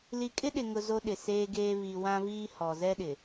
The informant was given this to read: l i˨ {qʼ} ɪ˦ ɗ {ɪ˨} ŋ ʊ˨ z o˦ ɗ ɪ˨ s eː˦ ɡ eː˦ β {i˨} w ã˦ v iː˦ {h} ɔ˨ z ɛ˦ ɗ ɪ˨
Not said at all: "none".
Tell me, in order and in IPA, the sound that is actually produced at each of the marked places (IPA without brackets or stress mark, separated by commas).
kʼ, ɪ˨, i˨, h